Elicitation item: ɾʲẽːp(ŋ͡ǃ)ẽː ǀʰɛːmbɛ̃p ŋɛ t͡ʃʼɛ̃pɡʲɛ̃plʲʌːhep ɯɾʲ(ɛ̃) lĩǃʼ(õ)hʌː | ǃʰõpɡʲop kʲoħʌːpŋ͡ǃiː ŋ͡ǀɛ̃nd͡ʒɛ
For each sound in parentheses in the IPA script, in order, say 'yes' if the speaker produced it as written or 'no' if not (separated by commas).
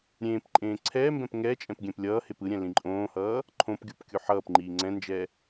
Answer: no, yes, no